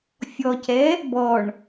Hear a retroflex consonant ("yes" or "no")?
yes